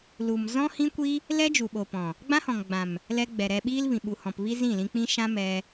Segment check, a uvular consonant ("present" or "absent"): absent